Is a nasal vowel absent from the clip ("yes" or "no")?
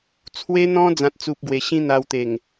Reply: no